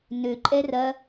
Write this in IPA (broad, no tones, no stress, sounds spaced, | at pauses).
n ø ǃʼ ɛ r ɐ